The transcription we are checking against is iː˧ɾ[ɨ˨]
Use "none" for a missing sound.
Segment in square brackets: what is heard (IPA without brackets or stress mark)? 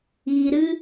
ɨ˦